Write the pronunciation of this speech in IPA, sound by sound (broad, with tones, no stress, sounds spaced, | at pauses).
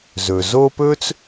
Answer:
z ɵ˩ z o˦ p ɵ˥ t͡s